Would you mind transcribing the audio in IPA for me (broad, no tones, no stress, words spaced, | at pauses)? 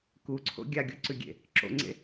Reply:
kuǀʰo̰ ɡʲaɡʲoǀʉɡʲḛ | ǁo̰ŋ͡ǀḛ